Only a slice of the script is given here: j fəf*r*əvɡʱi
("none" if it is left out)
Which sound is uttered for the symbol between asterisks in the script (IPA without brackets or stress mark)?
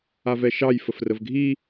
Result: r